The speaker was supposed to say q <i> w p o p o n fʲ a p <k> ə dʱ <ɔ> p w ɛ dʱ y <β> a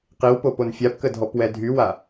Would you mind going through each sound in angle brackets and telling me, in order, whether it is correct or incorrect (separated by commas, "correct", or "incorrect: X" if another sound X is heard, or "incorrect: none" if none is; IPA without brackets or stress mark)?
correct, correct, correct, incorrect: w